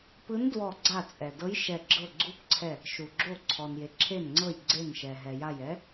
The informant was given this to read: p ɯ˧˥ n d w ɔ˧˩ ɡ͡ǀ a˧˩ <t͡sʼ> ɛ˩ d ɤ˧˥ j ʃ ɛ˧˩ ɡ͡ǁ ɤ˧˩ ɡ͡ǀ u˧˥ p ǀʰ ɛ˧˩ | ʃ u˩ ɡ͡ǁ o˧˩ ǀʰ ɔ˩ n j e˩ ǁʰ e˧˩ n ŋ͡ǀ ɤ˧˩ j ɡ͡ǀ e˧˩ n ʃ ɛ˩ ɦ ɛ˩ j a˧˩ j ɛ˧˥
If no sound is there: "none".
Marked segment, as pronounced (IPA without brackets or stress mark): t͡sʼ